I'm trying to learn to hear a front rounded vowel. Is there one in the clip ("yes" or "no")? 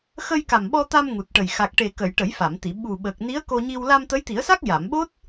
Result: no